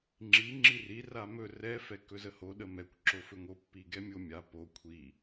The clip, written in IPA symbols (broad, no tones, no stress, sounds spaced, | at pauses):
ŋ͡ǁ i ŋ͡ǁ i r i r a m ɵ r ɛ f ɛ k ɵ z ə h o ɗ ə m ɛ kʷ ǁ o f ɵ ŋ o pː i ɡ ɛ mʲ o mʲ a p o kʷʰ i